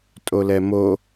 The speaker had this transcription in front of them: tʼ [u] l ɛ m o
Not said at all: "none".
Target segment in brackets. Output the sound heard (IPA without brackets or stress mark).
o